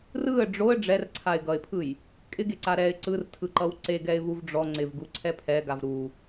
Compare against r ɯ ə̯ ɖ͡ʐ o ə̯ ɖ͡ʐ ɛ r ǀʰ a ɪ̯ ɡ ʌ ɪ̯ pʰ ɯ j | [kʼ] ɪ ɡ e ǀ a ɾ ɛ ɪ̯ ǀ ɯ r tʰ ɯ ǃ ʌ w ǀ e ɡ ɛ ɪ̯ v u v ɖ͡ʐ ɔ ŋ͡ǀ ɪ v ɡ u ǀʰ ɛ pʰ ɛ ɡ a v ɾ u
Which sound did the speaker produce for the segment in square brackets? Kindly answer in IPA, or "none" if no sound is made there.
kʼ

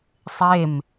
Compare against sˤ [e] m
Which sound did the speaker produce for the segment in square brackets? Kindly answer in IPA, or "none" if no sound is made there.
e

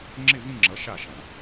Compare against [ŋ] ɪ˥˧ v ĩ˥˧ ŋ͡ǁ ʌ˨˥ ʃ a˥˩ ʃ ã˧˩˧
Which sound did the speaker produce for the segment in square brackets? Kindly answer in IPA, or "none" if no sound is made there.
ŋ͡ǁ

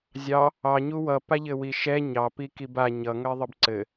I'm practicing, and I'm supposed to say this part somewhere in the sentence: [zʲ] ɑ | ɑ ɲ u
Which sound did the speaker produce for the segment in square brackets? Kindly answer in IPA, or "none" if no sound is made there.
zʲ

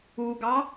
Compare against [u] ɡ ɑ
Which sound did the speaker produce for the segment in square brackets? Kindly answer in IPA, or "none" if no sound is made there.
u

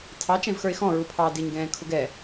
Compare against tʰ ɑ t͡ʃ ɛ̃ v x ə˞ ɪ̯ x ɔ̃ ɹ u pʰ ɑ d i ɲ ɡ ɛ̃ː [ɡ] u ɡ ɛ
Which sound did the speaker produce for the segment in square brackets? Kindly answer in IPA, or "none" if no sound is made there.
kʰ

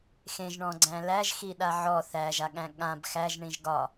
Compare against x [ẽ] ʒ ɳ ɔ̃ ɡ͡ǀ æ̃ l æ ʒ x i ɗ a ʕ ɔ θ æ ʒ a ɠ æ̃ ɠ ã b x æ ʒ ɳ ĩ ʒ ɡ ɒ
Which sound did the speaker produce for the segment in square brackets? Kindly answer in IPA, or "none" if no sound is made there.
ẽ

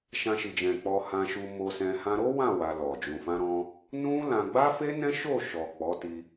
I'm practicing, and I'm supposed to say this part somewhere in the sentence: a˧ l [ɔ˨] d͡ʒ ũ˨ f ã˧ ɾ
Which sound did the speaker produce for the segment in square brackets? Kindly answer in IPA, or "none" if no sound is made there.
ɔ˨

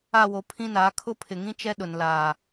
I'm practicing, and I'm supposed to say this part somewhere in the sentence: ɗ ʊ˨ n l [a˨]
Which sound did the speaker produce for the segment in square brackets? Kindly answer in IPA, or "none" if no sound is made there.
aː˨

